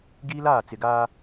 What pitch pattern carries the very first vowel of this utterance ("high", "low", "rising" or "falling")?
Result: high